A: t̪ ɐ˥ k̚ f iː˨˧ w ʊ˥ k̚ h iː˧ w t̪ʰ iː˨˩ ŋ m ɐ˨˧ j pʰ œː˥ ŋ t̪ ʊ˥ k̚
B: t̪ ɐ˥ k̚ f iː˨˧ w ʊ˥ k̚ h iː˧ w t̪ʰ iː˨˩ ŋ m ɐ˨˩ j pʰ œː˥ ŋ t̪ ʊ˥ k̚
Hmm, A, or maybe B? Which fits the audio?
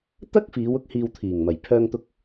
B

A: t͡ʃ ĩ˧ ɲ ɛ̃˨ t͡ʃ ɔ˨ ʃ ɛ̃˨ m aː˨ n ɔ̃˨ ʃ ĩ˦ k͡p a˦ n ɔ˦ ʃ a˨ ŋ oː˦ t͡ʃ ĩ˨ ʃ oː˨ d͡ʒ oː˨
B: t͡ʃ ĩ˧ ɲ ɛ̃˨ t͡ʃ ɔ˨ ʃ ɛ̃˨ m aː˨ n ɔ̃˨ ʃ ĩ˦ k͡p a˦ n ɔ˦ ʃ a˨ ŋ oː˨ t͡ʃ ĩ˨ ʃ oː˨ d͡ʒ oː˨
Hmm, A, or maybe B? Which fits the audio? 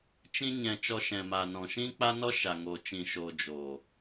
B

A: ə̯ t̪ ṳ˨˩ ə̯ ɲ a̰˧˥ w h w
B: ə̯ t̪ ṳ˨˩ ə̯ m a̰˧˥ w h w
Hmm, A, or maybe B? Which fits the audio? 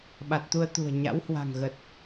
A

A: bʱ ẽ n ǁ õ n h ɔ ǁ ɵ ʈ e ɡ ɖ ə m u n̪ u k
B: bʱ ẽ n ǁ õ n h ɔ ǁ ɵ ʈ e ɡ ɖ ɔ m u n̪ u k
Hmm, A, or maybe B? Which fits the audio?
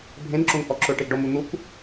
B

